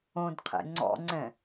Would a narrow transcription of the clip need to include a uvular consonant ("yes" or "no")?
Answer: yes